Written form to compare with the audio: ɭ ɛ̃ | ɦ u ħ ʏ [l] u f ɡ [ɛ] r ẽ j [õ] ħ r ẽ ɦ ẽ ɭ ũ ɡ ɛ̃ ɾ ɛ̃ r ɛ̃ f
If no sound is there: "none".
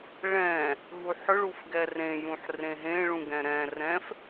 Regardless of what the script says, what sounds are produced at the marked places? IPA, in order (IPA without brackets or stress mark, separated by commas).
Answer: ɭ, ɛ, ũ